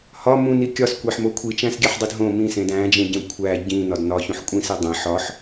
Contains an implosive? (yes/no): no